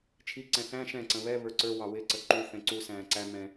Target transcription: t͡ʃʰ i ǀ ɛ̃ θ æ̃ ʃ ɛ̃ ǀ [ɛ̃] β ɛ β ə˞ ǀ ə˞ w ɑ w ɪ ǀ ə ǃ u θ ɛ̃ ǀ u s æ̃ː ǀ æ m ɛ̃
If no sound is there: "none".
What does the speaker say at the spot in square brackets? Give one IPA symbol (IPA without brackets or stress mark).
ə̃